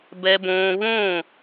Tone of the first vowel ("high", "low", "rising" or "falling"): high